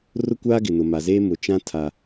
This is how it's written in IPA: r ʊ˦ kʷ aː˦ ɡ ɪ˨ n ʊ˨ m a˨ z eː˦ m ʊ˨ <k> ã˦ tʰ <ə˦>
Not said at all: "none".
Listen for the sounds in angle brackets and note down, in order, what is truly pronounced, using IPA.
t͡ʃ, a˦

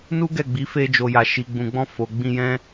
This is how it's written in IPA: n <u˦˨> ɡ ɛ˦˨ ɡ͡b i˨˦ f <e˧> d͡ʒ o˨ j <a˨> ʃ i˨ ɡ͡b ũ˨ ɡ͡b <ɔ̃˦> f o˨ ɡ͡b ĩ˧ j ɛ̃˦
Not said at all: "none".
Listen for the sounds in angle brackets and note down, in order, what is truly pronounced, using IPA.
u˦, e˧, a˨, ɔ̃˧

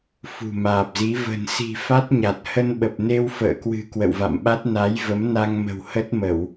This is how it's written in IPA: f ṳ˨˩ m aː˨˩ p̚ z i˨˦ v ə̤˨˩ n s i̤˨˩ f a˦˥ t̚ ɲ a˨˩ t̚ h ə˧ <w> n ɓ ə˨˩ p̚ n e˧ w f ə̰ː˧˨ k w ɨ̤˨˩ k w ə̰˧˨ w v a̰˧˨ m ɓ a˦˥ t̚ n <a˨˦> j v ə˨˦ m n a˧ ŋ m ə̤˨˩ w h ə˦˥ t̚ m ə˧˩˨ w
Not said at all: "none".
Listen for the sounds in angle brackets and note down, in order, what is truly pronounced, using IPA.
none, a˨˦

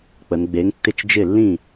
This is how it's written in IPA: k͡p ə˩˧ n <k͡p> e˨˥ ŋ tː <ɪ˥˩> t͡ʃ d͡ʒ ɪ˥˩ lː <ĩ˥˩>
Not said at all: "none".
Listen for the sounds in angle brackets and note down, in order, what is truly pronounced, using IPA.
ɡ͡b, ɪ˥˩, ĩ˥˩

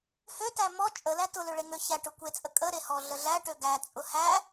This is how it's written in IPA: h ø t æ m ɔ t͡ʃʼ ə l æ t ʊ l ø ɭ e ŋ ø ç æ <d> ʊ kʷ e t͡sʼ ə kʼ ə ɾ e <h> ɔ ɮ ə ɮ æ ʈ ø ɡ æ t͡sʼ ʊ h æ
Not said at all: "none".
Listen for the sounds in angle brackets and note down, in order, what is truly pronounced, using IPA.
ʈ, h

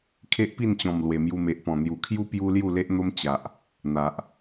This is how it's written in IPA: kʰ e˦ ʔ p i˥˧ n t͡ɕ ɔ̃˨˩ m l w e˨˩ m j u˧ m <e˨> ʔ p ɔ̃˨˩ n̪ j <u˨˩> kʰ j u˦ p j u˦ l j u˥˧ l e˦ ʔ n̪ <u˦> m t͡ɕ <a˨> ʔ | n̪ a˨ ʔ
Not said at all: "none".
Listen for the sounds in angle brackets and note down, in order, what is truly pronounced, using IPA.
e˨, u˨˩, o˦, a˨

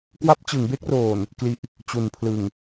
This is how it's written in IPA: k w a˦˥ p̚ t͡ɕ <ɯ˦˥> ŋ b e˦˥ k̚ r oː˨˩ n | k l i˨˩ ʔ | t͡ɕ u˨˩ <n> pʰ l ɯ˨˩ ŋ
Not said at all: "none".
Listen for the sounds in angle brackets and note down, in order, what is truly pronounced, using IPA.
ɯ˩˦, n

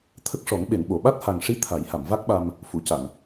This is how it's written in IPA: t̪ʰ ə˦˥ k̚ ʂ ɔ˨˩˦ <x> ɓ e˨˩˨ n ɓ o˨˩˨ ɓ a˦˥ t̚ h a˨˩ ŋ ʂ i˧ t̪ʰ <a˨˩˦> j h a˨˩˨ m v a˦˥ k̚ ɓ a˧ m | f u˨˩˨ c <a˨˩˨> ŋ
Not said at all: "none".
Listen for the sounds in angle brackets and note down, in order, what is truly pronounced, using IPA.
ŋ, a˨˩˦, a˨˩˨

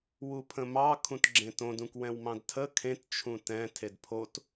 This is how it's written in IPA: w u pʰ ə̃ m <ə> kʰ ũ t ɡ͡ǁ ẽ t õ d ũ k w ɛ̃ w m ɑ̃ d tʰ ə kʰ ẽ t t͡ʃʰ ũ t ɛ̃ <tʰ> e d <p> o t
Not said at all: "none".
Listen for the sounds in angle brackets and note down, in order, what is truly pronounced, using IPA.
ɑ, tʰ, pʰ

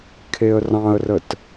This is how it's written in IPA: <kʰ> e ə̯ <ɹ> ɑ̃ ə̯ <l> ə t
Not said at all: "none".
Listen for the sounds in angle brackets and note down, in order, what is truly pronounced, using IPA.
kʰ, r, r

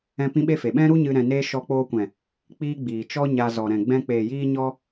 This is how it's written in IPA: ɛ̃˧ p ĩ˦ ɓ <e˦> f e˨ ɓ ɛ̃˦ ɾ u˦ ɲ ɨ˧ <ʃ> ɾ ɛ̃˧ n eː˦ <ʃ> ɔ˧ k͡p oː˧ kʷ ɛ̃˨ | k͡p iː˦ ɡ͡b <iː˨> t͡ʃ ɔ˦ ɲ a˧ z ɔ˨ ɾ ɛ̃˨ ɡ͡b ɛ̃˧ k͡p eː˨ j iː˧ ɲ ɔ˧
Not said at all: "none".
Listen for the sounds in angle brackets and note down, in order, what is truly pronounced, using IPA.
e˦, none, ʃ, iː˨

